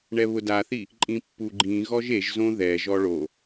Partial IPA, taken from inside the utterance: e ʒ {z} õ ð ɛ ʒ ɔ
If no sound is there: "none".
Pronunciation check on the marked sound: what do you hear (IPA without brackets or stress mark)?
z